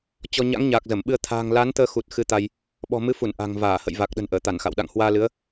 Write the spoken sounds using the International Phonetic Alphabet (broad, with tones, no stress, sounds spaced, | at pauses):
t͡ɕ ɔ˧ ɲ a̰˧˥ ŋ ɲ aː˨˩ k̚ z ə˧˩ m ɓ ɨ˧ ə̯ t̪ʰ a̤ː˨˩ ŋ l a˨˦ n t̪ əː˧ x u˨˩ t̚ x ɨ˧ t̪ a˧ j | ɓ ɔ̤˨˩ m ɨ˨˦ f u˧˩ n ʔ a̤˨˩ ŋ v aː˧˩ h ə̰˧˨ j v a˨˩ k̚ ɗ ə̤˨˩ n ʔ əː˧˩ t̪ a˧˩ n x a̰˧˨ w ɗ a̰˧˨ ŋ h w aː˧ l ɨ˨˦ ə̯